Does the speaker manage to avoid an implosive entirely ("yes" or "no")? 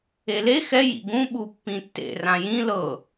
no